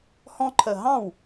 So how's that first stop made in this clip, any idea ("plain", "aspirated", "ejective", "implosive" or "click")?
click